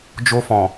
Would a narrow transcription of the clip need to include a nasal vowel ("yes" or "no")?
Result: yes